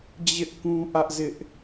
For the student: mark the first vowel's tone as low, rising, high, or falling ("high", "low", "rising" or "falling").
high